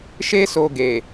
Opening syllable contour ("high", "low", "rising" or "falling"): high